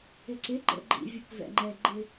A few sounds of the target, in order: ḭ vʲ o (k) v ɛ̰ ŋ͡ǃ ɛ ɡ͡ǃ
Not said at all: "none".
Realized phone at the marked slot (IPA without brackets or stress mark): k